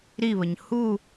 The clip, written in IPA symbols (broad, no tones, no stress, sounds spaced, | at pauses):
ɾ i β ə ɲ h u